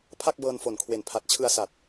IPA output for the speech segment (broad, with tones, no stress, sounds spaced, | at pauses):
pʰ a˥˩ k̚ b ɤː˧ n f o˩˦ n kʰ w e˩˦ n pʰ a˨˩ t̚ t͡ɕʰ ɯ˧ a̯ s a˨˩ t̚